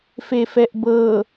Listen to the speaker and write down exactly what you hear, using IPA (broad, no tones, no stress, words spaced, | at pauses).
fefɛʔbɤ